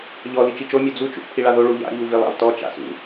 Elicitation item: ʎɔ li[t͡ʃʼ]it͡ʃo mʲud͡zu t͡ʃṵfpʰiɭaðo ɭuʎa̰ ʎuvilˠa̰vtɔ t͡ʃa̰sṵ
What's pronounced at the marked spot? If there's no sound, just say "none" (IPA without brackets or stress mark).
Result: t͡ʃ